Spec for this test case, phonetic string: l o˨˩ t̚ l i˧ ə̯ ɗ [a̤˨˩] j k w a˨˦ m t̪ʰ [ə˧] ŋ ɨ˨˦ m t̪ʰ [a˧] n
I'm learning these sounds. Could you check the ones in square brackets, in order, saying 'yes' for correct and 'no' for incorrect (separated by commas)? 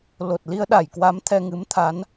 no, no, no